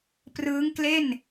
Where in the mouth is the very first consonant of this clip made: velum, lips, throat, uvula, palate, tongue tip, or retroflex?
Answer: lips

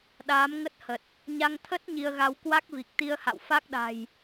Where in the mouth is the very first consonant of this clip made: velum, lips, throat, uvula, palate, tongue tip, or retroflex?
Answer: tongue tip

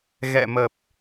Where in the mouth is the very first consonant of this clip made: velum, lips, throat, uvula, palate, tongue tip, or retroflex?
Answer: velum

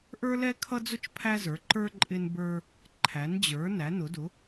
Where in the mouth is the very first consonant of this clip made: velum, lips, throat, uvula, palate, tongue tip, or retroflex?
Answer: throat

